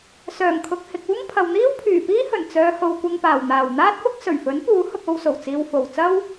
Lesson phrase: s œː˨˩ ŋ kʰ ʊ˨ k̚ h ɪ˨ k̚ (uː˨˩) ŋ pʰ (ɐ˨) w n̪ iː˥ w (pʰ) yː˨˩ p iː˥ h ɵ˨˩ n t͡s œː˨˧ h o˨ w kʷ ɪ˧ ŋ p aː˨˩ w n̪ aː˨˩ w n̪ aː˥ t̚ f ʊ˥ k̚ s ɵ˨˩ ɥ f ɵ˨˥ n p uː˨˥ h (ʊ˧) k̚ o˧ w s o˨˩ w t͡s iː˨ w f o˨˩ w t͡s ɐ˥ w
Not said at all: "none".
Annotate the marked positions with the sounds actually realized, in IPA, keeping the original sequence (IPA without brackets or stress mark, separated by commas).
uː˥, ɐ˨, pʰ, ʊ˧